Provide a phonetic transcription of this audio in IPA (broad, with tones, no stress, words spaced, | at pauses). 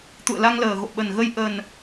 t̪ṵ˧˨ə̯la˧ŋləː˨˩ɣo̰˧˨ ɓə˨˩nɣə˧j ʔə˨˩n